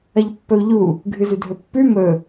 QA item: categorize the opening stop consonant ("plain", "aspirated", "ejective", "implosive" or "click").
plain